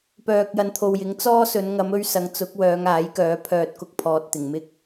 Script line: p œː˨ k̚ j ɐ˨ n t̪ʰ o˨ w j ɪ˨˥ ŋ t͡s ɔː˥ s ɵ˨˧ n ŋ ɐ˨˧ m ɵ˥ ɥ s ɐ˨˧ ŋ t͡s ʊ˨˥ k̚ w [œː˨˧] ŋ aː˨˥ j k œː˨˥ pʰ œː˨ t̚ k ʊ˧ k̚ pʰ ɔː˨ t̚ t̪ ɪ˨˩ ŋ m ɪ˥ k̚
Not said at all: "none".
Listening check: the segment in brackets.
œː˨˧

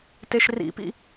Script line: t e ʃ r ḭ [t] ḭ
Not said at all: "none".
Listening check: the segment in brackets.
p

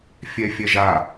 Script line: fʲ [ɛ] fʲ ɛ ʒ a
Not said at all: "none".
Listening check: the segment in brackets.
ɛ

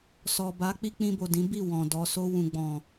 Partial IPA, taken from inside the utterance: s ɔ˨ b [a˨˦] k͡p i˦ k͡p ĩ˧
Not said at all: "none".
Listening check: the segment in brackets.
a˨˦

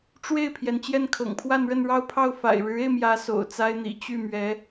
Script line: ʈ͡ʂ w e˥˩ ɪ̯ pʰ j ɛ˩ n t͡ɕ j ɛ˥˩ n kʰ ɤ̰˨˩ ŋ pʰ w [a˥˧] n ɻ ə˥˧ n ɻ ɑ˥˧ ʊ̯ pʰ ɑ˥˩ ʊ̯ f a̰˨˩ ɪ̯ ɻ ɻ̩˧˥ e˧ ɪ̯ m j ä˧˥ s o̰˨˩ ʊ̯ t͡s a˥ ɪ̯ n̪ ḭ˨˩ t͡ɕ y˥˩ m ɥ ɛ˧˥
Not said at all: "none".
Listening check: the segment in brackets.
a˥˧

